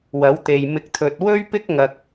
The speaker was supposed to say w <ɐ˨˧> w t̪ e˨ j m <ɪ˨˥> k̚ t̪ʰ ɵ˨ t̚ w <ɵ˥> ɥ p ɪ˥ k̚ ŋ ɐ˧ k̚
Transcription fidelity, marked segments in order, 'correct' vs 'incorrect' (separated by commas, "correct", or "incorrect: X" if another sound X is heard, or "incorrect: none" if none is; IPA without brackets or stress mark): incorrect: ɐ˨˥, correct, correct